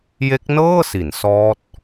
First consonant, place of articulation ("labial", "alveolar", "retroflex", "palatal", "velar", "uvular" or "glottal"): palatal